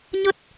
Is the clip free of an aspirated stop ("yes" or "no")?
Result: yes